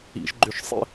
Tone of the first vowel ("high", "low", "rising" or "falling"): high